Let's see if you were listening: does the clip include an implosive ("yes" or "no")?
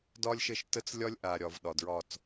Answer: yes